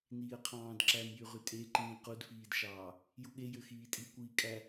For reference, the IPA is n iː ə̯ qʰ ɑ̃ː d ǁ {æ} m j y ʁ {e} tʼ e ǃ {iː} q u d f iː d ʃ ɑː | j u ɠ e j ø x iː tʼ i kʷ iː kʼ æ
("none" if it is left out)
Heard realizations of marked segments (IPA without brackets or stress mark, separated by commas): æ, y, ĩː